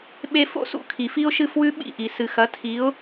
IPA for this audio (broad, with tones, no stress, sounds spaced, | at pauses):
ɓ e˧ f o̰˥ s ṵ˥ kʰ i˩ f i˥ ʊ̯ ʃ ɨ˥˩ f w ʉ˥ ɓ ḭ˥˩ ʔ i˩ s ɨ˩ x ɐ˩˥ tʰ i˩˥ ʊ̯